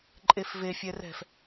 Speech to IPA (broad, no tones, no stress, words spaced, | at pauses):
ǃʼefve fʲɛrɛ̤f